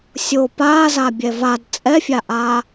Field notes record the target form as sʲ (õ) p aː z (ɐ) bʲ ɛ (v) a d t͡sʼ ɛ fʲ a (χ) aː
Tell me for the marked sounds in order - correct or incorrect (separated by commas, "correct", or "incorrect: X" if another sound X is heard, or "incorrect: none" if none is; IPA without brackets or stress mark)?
incorrect: o, incorrect: a, correct, incorrect: ʔ